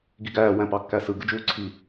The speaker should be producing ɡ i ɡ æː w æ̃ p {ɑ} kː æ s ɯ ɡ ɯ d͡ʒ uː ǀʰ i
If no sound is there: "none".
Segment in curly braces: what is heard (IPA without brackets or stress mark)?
ɑ